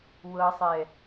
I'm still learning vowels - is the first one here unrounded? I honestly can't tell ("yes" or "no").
yes